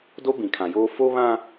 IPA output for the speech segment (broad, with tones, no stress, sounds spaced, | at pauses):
d o˦ b ĩ˨ kʰ ã˨ j oː˦ f o˦ β ã˦